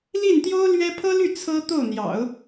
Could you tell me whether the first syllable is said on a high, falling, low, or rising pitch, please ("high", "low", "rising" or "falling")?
falling